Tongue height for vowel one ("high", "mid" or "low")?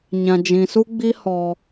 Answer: low